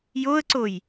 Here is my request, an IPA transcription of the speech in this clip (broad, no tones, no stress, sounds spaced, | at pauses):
j o ə̯ ǀ o j